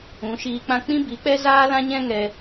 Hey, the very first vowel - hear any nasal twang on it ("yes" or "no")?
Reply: yes